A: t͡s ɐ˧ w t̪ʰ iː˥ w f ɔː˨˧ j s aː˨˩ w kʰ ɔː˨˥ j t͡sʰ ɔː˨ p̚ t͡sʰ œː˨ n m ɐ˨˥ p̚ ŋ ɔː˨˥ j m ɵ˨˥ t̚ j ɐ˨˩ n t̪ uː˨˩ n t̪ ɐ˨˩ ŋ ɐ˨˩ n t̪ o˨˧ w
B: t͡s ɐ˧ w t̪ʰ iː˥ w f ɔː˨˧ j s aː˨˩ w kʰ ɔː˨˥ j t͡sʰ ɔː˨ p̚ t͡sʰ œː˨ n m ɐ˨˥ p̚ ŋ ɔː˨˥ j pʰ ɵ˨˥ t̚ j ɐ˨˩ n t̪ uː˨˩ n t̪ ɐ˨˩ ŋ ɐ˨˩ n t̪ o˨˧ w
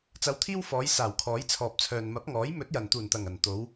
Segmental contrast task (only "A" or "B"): A